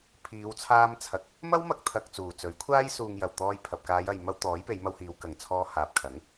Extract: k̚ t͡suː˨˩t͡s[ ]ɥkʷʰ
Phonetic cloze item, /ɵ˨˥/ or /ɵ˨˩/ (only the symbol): ɵ˨˥